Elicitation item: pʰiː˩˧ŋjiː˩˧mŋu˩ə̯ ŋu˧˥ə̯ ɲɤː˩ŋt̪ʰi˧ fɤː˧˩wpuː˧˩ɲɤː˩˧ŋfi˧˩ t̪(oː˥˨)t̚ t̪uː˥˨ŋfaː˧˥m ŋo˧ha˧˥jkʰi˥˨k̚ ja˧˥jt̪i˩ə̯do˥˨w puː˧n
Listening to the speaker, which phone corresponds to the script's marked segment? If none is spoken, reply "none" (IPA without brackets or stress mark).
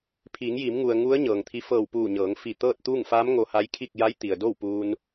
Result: ɤː˥˨